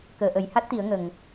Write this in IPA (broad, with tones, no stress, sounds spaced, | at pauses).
k əː˨˩ ʔ ə˨˩˨ j h a˦˥ t̚ t̪ i˨˩˦ ə̯ ŋ ə˨˩ ŋ